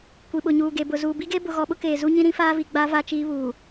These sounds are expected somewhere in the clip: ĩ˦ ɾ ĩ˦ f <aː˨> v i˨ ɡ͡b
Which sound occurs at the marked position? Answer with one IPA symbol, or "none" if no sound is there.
aː˦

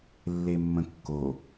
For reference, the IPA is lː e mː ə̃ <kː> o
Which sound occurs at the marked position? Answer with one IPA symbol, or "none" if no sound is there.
kː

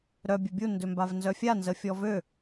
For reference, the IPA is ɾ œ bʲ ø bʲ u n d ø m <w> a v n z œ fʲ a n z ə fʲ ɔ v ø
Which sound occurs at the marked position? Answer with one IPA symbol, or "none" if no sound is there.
b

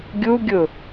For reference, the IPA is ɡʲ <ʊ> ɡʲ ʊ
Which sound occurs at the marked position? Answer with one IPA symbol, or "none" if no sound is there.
u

